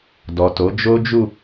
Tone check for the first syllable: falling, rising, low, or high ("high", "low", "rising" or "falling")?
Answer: low